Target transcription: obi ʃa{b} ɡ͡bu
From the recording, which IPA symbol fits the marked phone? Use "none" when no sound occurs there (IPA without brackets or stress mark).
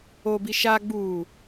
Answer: none